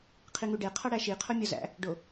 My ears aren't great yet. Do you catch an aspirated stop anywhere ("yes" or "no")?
yes